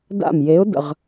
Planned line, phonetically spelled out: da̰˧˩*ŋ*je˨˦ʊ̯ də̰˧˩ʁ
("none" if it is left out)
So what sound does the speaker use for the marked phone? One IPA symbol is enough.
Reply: m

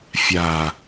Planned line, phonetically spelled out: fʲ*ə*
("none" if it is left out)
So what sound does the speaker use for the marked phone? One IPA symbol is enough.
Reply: a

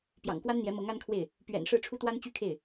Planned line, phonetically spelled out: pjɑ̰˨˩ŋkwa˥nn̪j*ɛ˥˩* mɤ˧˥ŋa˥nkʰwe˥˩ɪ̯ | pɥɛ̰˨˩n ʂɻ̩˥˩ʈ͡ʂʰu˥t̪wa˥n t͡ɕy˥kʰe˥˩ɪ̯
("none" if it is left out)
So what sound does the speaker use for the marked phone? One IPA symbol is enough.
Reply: ɛ˧˥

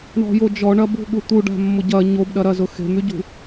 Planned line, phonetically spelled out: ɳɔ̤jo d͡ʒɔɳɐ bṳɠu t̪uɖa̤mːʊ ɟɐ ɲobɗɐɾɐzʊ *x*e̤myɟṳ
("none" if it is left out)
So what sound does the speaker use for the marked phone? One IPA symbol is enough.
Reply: x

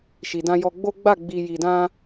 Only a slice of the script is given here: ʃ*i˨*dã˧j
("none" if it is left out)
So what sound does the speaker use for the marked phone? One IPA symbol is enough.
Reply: i˨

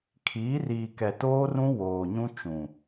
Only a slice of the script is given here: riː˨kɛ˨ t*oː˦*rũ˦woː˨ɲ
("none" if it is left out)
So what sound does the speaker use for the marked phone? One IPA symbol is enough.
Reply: oː˦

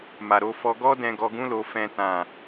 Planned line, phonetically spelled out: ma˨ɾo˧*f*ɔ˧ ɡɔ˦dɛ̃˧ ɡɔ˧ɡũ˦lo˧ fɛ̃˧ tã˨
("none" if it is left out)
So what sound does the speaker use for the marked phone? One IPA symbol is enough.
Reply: f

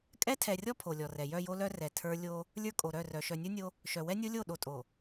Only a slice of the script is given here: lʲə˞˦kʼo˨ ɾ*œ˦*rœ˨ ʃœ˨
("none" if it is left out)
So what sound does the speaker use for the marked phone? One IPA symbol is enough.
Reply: œ˦˨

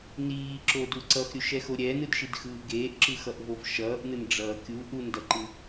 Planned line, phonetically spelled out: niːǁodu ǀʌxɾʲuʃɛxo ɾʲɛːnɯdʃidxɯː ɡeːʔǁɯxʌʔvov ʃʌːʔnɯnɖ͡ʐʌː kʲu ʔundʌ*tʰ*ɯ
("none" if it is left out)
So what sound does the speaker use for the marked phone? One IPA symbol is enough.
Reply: ǃ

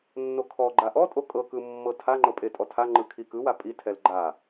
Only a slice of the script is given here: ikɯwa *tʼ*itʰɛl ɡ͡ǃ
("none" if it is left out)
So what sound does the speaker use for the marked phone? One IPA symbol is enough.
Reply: pʼ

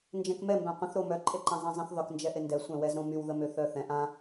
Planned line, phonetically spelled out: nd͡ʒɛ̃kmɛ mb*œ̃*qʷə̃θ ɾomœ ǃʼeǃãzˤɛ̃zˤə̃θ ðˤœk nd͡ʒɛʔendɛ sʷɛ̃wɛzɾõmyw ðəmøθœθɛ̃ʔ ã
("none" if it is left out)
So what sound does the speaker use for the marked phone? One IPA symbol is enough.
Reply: œ̃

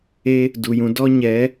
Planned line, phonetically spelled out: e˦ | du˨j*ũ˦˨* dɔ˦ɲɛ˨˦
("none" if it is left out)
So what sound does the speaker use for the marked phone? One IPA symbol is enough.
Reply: ũ˧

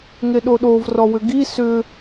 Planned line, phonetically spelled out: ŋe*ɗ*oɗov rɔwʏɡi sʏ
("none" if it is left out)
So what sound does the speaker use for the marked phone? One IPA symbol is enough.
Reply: ɗ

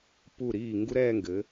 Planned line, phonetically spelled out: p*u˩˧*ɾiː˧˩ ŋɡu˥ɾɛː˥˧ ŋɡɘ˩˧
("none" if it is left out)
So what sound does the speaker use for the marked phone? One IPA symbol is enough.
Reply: u˧˩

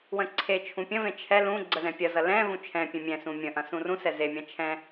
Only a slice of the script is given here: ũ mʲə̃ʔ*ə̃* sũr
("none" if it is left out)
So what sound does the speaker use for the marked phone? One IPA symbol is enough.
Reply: ɐ̃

